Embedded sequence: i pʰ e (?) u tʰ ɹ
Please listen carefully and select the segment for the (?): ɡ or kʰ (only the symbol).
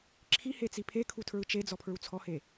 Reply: kʰ